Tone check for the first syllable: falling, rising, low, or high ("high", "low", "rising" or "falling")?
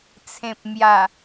low